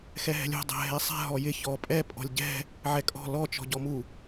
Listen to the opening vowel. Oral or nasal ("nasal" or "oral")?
oral